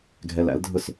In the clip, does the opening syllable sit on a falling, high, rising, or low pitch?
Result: low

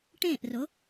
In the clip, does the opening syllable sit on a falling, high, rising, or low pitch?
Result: falling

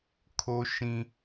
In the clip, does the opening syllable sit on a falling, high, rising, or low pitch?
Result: high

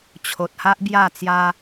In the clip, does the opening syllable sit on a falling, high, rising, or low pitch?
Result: low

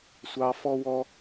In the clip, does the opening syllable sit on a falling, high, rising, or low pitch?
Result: high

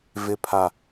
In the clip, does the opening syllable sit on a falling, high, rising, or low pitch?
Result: low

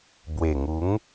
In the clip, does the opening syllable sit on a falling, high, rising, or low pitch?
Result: low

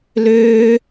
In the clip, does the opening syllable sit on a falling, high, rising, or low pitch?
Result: high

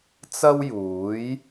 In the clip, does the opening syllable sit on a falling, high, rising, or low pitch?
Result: high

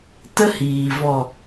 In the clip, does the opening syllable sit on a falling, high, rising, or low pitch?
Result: high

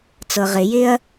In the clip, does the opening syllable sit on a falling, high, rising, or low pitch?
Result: low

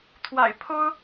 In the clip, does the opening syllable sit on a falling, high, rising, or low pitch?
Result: low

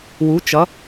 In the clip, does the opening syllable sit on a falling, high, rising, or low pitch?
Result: rising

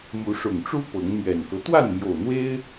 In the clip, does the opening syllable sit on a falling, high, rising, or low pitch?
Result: rising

